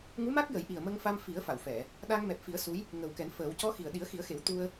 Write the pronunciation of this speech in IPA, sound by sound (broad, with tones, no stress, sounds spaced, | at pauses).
ŋ u˧˥ m a˦˥ k̚ j ə˨˩˦ j ʔ i˨˩ ə̯ m ə˧ ŋ f a˧ m f i˨˩˦ ə̯ f a˨˩˨ w f ɛ˨˩˨ | ɗ a˧ ŋ m ɛ˨˩ p̚ f i˨˩˦ ə̯ s u˧˥ j | ŋ ə˨˩ w k ɛ˨˩˦ n f əː˨˩˦ w c ɔ˧˥ x i˨˩ ə̯ ɗ i˨˩˦ ə̯ x i˨˩˦ ə̯ x e˨˩˦ w t̪ u˧ ə̯